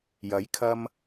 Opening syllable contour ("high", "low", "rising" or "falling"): rising